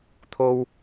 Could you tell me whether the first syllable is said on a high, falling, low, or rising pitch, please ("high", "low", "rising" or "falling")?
high